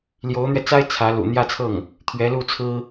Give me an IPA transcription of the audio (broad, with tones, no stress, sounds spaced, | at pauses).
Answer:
l j o˧˥ ʊ̯ n̪ ɥ ɛ˧ t͡s a˥ ɪ̯ t͡sʰ ä˧˥ l ṵ˨˩ n̪ j ä˥˧ t͡sʰ ɤ˥˩ ŋ | t̪ʰ ɥ ɛ˧˥ l u˥˩ t͡sʰ ɹ̩˥